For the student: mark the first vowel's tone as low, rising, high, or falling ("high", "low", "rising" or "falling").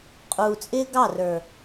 low